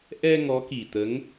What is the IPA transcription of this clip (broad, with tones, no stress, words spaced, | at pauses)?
ʔɛ˧ ŋɔ˧˥ki˨˩t̪ə˧˥ŋ